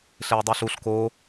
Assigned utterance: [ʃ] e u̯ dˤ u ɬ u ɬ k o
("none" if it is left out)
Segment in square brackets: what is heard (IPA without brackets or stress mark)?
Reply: ɬ